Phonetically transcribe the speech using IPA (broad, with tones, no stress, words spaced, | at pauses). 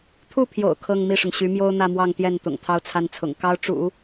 t̪ʰu˥˩pʰjo̰˨˩ʊ̯ kʰɤ˥˧ŋ mi˥˩ʂʊ˩ŋɕy˧˥ mjo˥ʊ̯n̪ä˥˧mwɑ˥˧ŋt̪jɛ˥˩n t̪ʊ̰˨˩ŋt̪ʰɑ˥˧ʊ̯t͡sʰa˥˩nt͡sʰʊ̰˨˩ŋ kɑ˥ʊ̯ʈ͡ʂṵ˨˩˦